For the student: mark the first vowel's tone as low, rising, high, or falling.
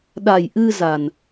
low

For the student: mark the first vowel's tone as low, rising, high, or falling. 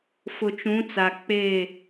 low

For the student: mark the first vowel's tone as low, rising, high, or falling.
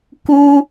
high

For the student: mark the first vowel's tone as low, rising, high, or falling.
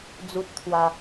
high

